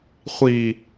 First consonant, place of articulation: uvular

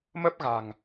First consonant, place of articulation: labial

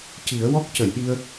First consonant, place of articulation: palatal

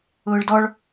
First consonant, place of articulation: retroflex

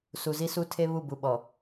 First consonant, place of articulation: alveolar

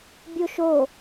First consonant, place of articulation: labial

